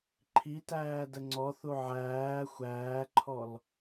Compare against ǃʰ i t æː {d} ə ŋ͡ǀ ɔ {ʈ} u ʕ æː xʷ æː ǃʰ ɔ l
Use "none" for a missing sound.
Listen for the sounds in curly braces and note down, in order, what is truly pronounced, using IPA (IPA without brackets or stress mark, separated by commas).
d, θ